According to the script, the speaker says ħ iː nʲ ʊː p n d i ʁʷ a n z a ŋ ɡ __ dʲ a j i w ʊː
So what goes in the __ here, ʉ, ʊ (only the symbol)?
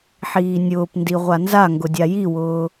ʊ